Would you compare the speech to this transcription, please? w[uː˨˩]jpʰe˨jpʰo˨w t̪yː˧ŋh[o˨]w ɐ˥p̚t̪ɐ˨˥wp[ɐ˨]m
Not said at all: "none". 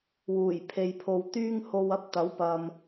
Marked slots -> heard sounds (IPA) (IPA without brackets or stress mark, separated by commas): uː˨˩, o˨, ɐ˨